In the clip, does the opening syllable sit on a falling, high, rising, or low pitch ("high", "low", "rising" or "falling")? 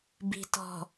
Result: low